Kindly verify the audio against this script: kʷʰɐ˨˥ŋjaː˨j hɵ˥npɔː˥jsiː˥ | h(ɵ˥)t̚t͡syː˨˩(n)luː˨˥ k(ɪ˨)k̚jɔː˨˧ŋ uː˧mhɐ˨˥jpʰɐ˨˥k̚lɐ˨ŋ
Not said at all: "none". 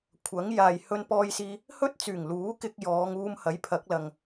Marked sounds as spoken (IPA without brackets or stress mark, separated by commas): ɵ˥, ŋ, ɪ˧